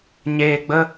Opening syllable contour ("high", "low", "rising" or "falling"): low